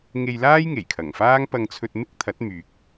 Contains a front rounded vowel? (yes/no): yes